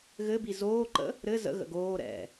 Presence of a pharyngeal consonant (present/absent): absent